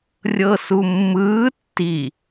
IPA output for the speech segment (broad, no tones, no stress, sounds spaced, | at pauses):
rʲ ɤ s u mː ɯː tː i